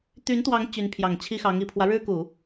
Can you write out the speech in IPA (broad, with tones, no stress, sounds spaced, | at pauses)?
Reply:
t̪ y˧˥ n t̪ w ɑ˧˥ ŋ t͡ɕ y˧˥ n pʰ j ɑ˨˩ ŋ t͡ɕʰ i˥ x ɑ˧˥ ŋ i˨˩ pʰ w ä˦ ɻ ɻ̩˥ k u˨˩˦